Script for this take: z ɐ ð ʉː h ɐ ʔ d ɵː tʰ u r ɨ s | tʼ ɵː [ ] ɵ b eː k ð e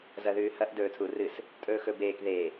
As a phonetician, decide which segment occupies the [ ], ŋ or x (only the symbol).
x